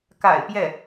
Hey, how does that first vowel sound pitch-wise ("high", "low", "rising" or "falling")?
low